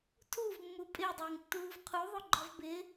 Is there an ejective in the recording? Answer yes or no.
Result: yes